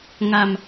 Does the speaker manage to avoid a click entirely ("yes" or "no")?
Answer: yes